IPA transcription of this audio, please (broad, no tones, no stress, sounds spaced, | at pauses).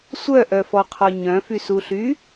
sʷ œ ʔ œ f ɔ qʰ ɔ ɲ œ̃ f y s u ɬ y